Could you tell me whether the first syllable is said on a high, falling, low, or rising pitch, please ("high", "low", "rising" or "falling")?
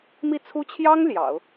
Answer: falling